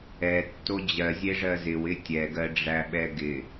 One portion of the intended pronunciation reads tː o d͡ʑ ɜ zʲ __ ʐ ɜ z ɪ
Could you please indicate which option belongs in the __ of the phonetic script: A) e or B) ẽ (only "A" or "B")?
A